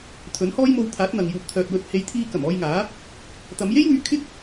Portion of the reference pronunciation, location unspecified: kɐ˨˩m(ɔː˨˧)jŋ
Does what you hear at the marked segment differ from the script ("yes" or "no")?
yes